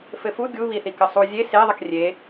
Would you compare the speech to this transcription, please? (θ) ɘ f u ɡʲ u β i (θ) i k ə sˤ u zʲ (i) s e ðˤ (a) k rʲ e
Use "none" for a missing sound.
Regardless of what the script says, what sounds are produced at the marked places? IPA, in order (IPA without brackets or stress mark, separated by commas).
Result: f, θ, e, ə